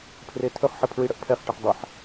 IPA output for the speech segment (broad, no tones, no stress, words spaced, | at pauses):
pʰretʰɵχħə pʰɹiɽəʔpʰɛχʈəħ dˤaħ